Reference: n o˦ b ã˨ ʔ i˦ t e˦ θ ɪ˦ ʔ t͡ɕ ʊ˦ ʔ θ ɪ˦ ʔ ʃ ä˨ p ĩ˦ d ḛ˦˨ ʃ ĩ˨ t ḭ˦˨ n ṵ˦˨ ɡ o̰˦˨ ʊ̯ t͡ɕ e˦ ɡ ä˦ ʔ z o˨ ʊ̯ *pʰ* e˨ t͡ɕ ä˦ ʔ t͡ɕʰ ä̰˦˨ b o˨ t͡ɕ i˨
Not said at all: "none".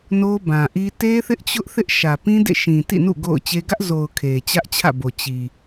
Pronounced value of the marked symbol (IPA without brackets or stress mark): kʰ